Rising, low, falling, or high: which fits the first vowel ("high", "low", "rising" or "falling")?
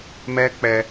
high